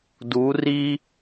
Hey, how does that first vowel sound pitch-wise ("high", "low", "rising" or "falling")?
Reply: rising